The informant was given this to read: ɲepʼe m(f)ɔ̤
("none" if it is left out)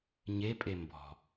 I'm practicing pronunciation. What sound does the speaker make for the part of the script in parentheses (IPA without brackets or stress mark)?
b